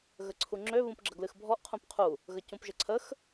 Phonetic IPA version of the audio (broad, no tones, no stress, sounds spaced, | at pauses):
ɣ ə ǀʰ u ŋ͡ǁ ø β ũ p ɡ͡ǁ ə ɡ l ɨ x bʱ ɔ ʔ qʰ ũ p qʰ u | ɣ ə c ũ p ʒ ə ǀʰ ə x